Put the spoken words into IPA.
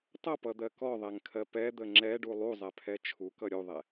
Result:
tˤ ʌ p ʌ d̪ ɜ k ɔ ðˤ ɛ ŋ kʰ ɜ p ɛ d̪ ə ŋ͡ǁ ɛ ɖ u lˠ u zˤ ɛ pʰ ɛ t͡ʃʰ u k ʌ ɾʲ u ðˤ ɛ

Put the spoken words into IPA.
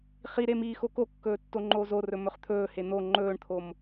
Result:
χ i ɾ e m iː x o k o kː ɵː tː o ŋ͡ǃ oː z o r ɵ m ɵ χ t̪ʰ ɵː h e n̪ o ŋ͡ǃ ɵː ɳ t̪ʰ o m

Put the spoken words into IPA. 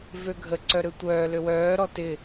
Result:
v ø ɡʱ ə ǀ œ ɾ ø tʷ œː l ø w œː ɾ ɔ t ɪ

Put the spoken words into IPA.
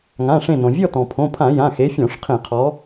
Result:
ŋ ã˩˧˩ ʂ ẽ˧˩ n õ˩ vʲ ɔ˥˨ t ɔ̃˩ pʰ õ˩˧˩ pʰ ã˧˩˧ j ã˩˧˩ x e˨˦ fʲ ɔ̃˧˩˧ ʂ qʰ ẽ˧˩˧ qʰ ɔ˨˦

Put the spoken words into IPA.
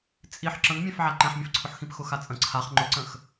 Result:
t͡sʼ i ħ ǁ ə̃ ŋ mʲ ɛ̃ f ʕ a ǃ ɛ̃ ħ mʲ ə̃ f ǀʰ ʊ ħ x ĩ p x ʊ x a t͡sʼ ə̃ ǀʰ a χ ŋ͡ǃ ʊ ǀ ə̃ x

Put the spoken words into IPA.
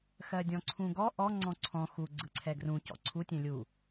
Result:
x ɜ dʲ ɔ̃ ǀʰ ũ ɡ ɔ ʔ ɔ ŋ͡ǀ ɔ̃ ǀʰ ɔ̃ x u ɡ͡ǀ ɯ ǀʰ ɛ ɡ r ũ c ɔ̰ ǀʰ u tʲ ɛ̃ lʲ u

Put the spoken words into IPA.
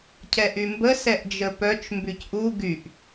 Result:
cʰ ɛ ʔ y m b ə s ɛ ʔ d͡ʒ ə p œ t͡ʃ m b y c ʔ u ɡ y ʔ

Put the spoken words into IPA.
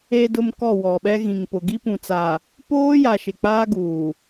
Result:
e˨ d ʊ˨ m k ɔ˦˨ w ɔ˨ ɓ ɛ˦ ɣ ĩ˨ ŋ p ʊ˨ ɡ i˦ p ũ˨ t͡s a˨ | p oː˦ j a˨ ʃ ɪ˨ k͡p aː˦ ɡ uː˨

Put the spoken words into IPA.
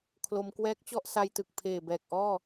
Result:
kʰ l o˧ m k w ɛː˦˥ k̚ t͡ɕ ɔ˥˩ ʔ s a˧ j t ɯ˨˩ k̚ pʰ eː˨˩ b ɛː˨˩ k̚ ʔ ɔː˥˩

